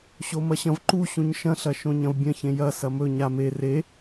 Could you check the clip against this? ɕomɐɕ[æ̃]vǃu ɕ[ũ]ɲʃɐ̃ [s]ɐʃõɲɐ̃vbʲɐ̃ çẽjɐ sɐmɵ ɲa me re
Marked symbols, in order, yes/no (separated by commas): no, yes, no